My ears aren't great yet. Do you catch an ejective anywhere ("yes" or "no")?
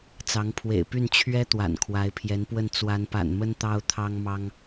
no